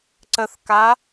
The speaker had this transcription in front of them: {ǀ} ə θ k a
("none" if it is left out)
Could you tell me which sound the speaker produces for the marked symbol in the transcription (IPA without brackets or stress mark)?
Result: ǀ